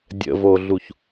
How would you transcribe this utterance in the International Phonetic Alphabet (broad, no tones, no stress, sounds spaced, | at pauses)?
dʲ ə̰ v o ɮ u ç